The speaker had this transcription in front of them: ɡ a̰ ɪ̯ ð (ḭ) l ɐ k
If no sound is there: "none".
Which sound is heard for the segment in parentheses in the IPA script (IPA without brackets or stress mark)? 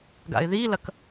i